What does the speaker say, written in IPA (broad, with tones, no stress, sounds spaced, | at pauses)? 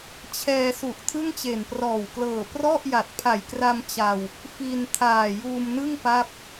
t͡ɕʰ ɛː˧ s u˨˩ ʔ tʰ ɯ˥˩ ŋ t͡ɕ e˨˩ n p r ɔː˨˩ w k l ɤː˨˩ p r ɔ˥˩ ʔ j a˨˩ t̚ pʰ a˨˩ j k r a˧ m t͡ɕ a˧ w | f i˧ n tʰ aː˨˩ j uː˧ m n ɯ˥˩ ŋ p a˥˩ p̚